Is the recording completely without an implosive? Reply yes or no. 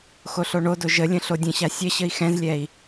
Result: yes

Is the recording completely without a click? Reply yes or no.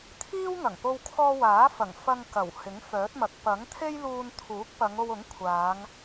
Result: yes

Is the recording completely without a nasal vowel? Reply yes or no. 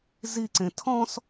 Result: no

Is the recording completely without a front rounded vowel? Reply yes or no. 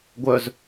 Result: no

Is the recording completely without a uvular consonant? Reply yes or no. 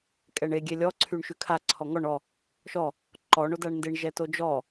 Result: yes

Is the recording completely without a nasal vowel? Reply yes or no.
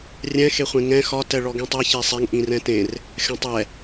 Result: no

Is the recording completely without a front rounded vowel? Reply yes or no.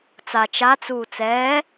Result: yes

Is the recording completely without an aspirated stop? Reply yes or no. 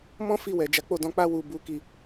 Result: yes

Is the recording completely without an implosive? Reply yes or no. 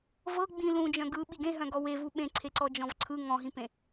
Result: no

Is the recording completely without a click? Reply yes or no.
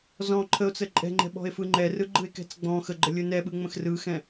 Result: no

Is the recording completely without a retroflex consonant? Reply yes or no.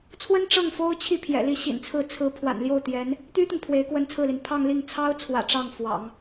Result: no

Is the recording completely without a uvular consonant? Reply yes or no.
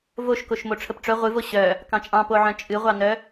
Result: no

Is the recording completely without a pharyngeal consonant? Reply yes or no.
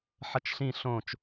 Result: no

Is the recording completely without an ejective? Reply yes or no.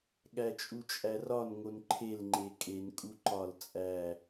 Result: no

